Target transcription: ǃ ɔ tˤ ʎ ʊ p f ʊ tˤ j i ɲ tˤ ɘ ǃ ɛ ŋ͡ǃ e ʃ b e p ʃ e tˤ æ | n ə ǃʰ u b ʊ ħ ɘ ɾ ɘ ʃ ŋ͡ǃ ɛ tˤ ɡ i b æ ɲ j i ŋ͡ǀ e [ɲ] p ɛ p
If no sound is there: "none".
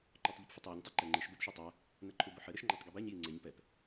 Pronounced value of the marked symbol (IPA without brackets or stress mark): ɲ